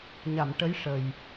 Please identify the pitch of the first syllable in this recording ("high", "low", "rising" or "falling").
low